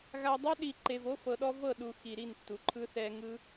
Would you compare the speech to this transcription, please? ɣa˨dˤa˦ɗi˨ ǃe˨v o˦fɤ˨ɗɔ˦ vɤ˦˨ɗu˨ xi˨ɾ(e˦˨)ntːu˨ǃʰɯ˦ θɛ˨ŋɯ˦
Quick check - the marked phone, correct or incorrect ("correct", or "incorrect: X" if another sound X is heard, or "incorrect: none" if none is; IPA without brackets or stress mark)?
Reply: incorrect: i˦˨